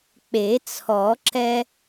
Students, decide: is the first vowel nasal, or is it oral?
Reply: oral